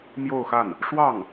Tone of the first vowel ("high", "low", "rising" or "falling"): falling